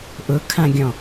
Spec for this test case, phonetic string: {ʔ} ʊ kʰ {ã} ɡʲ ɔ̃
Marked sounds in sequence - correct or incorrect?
correct, correct

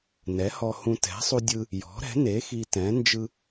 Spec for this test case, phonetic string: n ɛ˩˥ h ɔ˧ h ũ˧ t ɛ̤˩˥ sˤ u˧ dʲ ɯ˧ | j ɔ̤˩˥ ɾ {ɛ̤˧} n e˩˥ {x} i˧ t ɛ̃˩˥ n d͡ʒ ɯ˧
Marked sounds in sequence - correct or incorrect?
incorrect, correct

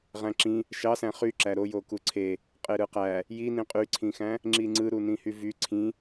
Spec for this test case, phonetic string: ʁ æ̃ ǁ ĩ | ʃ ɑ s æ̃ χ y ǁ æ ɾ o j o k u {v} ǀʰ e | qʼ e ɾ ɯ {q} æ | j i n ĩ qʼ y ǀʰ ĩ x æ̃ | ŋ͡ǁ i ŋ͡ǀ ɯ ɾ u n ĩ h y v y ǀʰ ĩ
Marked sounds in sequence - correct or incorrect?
incorrect, correct

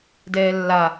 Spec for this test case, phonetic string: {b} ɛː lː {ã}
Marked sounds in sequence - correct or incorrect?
incorrect, incorrect

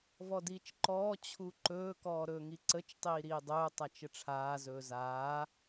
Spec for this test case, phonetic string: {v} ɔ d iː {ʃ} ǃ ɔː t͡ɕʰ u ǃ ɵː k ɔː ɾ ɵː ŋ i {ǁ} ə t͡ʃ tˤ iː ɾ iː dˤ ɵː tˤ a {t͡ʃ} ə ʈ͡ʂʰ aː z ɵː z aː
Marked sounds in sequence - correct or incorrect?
correct, incorrect, incorrect, correct

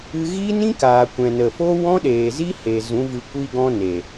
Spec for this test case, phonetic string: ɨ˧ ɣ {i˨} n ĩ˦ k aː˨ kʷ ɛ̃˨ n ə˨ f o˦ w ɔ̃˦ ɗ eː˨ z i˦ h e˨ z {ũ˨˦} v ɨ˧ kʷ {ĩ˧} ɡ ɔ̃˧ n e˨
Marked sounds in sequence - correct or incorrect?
incorrect, correct, incorrect

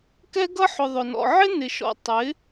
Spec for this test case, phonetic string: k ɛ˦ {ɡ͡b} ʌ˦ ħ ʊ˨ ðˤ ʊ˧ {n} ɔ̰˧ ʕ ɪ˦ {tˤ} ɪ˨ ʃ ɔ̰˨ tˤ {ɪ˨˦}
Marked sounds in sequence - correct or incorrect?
incorrect, correct, incorrect, correct

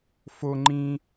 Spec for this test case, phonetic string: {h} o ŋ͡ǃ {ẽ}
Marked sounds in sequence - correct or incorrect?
incorrect, incorrect

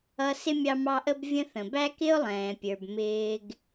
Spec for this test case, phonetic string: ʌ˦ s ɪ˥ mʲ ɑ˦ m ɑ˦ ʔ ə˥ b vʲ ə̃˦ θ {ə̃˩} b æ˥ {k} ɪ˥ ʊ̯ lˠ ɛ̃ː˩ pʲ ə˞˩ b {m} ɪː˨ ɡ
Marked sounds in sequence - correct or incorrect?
correct, correct, correct

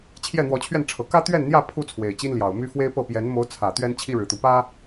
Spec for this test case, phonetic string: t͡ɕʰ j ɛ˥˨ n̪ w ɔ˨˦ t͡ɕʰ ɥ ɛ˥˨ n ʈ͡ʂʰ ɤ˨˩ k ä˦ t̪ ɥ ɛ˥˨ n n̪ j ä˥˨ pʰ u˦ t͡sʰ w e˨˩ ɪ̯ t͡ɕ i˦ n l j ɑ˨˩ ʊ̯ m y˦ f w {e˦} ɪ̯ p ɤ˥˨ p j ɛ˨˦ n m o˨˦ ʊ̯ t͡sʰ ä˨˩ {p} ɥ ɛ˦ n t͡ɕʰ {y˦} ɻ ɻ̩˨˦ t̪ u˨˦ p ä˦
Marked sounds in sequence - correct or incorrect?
correct, incorrect, incorrect

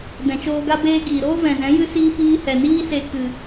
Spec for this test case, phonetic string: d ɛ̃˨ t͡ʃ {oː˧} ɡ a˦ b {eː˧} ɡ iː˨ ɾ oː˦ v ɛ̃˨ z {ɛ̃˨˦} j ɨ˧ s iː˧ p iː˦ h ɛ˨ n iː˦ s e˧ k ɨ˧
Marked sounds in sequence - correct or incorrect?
correct, incorrect, correct

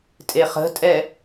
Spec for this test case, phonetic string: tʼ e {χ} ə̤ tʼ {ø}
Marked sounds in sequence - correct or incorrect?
correct, incorrect

